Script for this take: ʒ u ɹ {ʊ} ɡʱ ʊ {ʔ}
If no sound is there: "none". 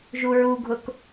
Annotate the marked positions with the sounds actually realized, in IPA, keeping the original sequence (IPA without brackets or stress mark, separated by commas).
u, k